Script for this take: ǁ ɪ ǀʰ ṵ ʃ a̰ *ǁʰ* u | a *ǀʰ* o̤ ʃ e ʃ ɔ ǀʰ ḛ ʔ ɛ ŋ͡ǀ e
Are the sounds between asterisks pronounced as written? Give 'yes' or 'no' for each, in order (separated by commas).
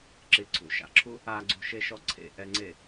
yes, no